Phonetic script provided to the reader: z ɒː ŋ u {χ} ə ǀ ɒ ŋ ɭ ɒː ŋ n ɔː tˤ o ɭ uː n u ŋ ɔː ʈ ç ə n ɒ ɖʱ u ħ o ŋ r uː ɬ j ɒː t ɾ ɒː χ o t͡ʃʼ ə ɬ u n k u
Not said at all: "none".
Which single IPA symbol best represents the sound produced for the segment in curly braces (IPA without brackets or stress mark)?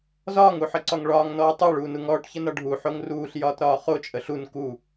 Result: ħ